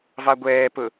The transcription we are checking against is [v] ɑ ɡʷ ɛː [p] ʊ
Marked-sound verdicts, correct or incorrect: correct, correct

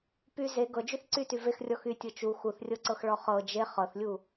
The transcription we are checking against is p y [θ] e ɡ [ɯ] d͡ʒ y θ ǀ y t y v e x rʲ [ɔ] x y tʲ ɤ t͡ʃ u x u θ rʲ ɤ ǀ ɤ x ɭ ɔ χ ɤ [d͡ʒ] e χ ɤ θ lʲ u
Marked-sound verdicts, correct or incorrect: incorrect: z, incorrect: ɤ, correct, correct

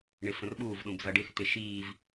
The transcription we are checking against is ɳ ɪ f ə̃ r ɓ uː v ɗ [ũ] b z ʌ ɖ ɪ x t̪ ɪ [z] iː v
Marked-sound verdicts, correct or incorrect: correct, incorrect: ʃ

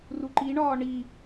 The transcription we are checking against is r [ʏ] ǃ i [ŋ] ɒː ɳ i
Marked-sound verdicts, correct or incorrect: incorrect: u, incorrect: ɳ

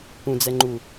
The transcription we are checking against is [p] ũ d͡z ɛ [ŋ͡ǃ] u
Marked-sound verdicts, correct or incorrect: correct, correct

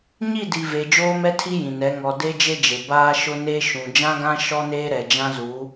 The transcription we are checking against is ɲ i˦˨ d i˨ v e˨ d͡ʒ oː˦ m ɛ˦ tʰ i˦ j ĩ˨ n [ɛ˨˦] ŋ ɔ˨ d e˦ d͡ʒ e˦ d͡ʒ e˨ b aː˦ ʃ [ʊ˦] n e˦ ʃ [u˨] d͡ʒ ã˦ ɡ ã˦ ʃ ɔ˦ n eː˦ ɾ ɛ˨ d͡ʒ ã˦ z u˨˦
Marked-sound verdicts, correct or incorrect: correct, correct, incorrect: ũ˨

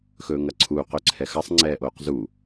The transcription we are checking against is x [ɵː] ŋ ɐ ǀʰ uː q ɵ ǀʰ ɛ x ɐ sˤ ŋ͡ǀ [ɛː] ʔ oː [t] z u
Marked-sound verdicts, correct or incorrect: correct, correct, incorrect: q

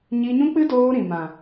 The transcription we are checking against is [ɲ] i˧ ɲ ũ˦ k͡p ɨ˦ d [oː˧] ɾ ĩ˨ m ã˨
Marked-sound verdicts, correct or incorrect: correct, correct

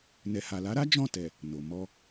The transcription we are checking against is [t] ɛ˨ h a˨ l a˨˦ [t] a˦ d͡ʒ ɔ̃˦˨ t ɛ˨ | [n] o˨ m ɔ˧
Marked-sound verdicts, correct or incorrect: incorrect: n, incorrect: ɾ, correct

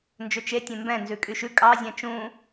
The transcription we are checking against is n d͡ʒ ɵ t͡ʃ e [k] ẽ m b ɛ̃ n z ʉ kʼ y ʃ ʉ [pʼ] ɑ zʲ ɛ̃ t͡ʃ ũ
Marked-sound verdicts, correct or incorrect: incorrect: tʲ, incorrect: kʼ

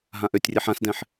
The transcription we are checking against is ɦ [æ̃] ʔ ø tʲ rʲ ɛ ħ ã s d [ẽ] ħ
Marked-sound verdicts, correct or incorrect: incorrect: ã, incorrect: ɛ̃

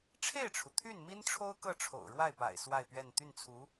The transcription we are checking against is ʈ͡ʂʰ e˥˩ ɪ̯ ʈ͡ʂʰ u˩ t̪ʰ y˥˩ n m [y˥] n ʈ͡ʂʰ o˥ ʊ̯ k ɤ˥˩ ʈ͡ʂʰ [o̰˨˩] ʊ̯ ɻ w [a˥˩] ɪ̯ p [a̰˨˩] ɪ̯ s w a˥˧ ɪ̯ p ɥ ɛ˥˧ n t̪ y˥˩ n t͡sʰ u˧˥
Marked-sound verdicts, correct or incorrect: incorrect: i˥, correct, correct, correct

